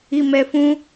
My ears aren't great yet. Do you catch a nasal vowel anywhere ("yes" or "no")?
yes